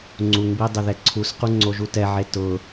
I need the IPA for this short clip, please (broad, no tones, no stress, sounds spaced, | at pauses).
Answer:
ŋ͡ǀ u ŋ b i dˤ ɪ ð ɛ ǀʰ u s q u ŋ͡ǀ o ʒ u t ɛ ʕ e t ʊ